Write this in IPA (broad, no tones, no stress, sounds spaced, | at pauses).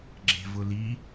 ɡ͡ǁ e̤ v ʊ l i